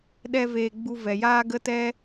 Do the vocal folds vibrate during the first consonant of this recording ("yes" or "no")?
yes